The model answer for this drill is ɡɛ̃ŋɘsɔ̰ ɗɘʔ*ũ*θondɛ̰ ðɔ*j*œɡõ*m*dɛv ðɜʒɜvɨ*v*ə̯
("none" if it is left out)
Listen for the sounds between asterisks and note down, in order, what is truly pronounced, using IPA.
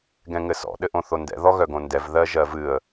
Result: õ, ɣ, n, none

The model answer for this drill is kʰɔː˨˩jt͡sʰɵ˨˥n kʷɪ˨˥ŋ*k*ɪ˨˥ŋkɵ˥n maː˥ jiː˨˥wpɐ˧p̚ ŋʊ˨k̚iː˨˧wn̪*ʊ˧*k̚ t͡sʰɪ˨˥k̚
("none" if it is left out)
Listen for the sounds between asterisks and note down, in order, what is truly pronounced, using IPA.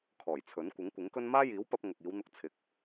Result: kʷ, ʊ˧

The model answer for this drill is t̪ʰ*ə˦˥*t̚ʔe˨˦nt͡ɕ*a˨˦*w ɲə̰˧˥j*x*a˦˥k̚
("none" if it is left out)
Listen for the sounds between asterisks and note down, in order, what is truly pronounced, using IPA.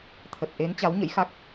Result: ə˨˩, a˨˦, x

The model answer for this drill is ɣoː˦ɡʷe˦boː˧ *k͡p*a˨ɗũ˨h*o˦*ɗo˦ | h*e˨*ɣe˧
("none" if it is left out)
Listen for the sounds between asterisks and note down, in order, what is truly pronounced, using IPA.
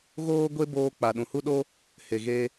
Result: k͡p, u˦, e˨

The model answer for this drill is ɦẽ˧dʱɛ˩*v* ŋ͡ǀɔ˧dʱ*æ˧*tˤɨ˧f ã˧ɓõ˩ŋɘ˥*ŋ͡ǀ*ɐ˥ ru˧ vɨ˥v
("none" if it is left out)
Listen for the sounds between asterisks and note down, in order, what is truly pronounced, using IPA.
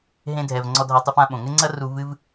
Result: v, a˧, ŋ͡ǀ

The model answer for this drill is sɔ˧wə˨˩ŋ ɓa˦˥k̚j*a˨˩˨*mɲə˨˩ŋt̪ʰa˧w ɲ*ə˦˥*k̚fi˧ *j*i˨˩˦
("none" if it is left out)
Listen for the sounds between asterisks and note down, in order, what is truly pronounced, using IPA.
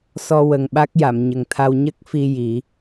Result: a˨˩˨, ə˦˥, j

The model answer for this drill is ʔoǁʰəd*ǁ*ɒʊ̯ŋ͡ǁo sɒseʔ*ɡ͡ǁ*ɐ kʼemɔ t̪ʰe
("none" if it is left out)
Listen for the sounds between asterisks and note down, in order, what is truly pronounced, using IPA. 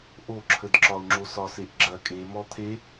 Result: ǁ, ɡ͡ǁ

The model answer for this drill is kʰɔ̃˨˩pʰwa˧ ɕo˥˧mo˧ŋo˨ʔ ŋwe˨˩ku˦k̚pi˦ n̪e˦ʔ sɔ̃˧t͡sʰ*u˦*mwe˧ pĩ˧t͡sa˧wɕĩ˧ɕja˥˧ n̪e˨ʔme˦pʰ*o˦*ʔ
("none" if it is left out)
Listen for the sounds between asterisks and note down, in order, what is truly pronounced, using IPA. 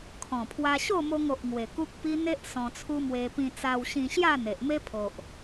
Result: u˦, o˨

